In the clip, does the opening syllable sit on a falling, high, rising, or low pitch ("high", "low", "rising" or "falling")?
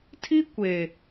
high